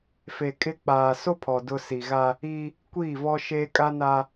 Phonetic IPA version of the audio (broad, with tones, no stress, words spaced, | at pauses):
fe˨ kʼɪ˦ k͡paː˨so˦pʰɔ˨ dʊ˦ si˨ɣa˦ | i˦ | kʷiː˦˨vɔ˦ ʃeː˦ kʼa˦na˦